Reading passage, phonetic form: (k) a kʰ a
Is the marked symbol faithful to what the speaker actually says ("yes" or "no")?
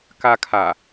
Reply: yes